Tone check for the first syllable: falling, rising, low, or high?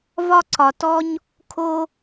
high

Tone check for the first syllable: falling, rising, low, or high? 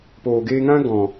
low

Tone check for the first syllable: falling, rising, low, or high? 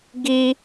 high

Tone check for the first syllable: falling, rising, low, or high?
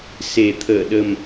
low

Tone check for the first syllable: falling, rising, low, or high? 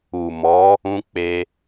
low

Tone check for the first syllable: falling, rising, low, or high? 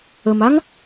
low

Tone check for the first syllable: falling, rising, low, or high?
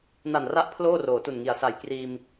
low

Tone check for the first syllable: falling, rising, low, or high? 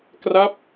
falling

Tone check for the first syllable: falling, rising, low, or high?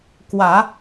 low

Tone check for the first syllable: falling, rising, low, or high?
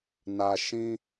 low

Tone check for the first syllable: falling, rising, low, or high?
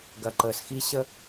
low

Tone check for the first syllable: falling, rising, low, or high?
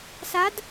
rising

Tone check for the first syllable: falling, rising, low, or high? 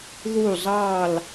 falling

